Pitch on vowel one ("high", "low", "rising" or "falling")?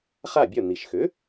falling